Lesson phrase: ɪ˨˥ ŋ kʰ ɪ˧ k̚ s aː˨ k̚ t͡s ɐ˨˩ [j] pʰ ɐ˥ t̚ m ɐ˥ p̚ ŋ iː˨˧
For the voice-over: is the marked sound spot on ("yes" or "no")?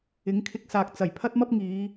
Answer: yes